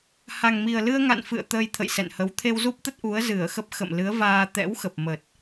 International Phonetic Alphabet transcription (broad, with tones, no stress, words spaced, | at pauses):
ha˨˩ŋmi˨˩ə̯lɨ˧ə̯ŋa̰˧˨n fɨ̰˧˨ə̯ t̪əː˧jt̪ʰə̰˧˨j sɛ̰˧˨nhə˨˦w t̪ʰe˧wzu˦˥p̚t̪ə˦˥t̚ ʔu˨˦ə̯zɨ˧˩ə̯xə˦˥p̚ xə̰˧˨mlɨ˨˦ə̯vaː˧ t̪ɛ̰˧˥wxə˨˩p̚mə˨˩t̚